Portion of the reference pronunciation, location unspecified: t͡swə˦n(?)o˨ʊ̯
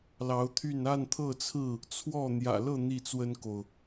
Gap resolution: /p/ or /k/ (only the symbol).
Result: k